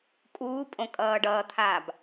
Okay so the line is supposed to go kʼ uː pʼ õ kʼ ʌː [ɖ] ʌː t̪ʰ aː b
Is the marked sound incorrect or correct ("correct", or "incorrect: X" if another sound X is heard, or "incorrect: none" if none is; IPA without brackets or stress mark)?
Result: correct